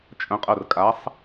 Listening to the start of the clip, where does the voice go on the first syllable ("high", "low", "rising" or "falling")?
rising